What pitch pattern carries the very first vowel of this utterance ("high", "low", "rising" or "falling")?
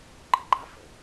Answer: high